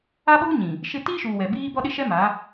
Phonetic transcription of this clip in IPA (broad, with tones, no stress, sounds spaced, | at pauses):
a˦ ɓ uː˦ ɲ ĩ˨ | ʃ ɪ˦ t iː˦ ʃ uː˨ w ɛ˨ b iː˦ b ɔ˦ ɗ ɪ˦ ʃ ɛ˦ m a˨˦